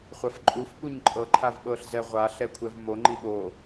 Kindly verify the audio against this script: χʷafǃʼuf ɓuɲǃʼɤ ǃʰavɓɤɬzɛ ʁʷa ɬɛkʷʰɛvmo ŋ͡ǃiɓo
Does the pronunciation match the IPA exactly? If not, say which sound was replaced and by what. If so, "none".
none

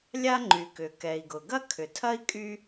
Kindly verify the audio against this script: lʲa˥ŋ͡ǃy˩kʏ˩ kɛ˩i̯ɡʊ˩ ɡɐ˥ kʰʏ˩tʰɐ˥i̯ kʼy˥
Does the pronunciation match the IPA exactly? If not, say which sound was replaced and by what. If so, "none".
none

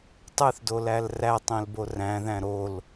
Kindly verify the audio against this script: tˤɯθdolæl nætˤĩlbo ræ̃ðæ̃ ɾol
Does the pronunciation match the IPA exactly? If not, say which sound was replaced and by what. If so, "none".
n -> r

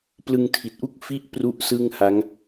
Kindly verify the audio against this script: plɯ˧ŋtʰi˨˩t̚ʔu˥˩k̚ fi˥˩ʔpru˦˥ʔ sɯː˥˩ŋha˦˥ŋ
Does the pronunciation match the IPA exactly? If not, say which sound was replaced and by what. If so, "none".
none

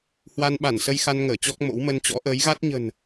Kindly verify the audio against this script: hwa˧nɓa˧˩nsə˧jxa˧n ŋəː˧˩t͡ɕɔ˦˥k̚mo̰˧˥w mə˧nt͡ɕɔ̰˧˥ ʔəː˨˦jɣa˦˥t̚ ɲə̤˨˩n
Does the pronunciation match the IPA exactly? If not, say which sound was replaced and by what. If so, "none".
none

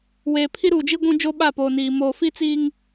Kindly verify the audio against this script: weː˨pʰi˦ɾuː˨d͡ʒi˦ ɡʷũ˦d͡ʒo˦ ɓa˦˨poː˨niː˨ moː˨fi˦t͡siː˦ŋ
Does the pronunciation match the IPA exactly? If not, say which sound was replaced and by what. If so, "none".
none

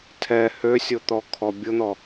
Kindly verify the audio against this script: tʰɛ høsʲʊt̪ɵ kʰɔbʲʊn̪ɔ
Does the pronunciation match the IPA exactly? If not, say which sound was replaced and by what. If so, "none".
ɵ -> ɔ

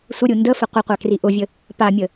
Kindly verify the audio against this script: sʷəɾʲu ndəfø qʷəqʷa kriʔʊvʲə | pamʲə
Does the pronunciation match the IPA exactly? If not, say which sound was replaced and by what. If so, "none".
ø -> ə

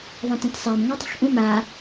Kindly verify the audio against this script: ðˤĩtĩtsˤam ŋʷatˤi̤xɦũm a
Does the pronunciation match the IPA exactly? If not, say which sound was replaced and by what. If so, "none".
ɦ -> ʔ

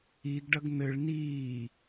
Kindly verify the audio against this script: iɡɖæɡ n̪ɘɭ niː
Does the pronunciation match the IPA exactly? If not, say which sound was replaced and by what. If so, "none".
æ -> ɐ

